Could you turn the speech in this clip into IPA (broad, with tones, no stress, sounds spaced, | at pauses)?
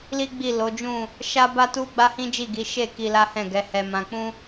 l i˦ ɡ͡b i˦˨ l o˨˦ d͡ʒ ũ˦˨ | ʃ a˦ b a˦ t u˦ ɡ͡b a˦ h ĩ˦ d͡ʒ i˦˨ ɡ i˨˦ ʃ e˦˨ k i˧ l a˦ h ɛ̃˦˨ ɡ ɛ˨˦ h ɛ˧ m ã˧ k͡p ũ˦